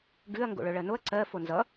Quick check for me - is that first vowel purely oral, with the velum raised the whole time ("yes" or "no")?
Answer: yes